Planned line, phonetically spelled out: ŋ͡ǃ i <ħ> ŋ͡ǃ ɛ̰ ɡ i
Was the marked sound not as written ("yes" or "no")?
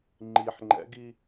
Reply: no